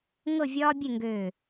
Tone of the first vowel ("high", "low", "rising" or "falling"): falling